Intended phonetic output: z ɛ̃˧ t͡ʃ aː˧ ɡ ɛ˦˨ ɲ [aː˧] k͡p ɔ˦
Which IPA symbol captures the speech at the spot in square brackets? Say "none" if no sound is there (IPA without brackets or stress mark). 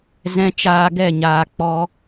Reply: aː˧